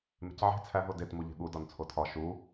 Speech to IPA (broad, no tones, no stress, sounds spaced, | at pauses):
m e̤ c ʕ e̤ t͡sʰ æ ɦ o d e t m u ʎ e̤ ɠ u d ɒ n t͡sʰ o tʰ ɒ ʃ u